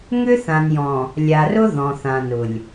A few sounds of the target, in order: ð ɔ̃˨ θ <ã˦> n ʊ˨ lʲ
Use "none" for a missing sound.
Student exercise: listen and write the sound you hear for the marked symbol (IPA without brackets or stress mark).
ã˨